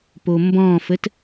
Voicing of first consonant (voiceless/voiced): voiceless